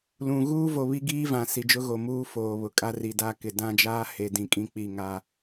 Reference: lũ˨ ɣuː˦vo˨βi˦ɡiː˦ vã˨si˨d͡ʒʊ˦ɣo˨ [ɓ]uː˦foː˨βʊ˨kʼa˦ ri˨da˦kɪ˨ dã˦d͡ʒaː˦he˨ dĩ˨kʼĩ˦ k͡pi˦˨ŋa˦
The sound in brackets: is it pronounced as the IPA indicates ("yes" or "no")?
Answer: no